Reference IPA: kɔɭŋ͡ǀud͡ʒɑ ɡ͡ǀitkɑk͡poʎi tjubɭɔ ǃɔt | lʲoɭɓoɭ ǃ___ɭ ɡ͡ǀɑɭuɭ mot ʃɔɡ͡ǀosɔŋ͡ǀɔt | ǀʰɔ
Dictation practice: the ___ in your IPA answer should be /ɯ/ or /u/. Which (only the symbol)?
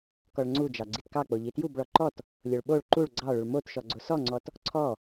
u